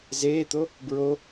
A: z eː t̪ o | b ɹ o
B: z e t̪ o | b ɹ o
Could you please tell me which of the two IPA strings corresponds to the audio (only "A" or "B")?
A